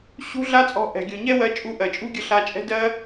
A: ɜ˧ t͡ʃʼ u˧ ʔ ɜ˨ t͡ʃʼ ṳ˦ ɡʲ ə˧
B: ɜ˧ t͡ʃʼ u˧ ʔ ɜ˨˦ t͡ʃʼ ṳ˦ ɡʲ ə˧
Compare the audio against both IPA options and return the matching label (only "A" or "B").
A